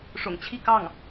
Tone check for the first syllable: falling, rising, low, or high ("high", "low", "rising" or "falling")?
low